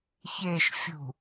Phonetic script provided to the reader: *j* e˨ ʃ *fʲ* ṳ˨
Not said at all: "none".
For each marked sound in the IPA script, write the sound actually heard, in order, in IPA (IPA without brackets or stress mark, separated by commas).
ç, fʲ